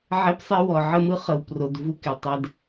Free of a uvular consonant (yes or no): no